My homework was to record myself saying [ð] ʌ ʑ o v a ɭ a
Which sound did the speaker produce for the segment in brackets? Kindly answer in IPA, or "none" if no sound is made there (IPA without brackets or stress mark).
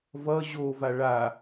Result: v